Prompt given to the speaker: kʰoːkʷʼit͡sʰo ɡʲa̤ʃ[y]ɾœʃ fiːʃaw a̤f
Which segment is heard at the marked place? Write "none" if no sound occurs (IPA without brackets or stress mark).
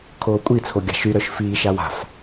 y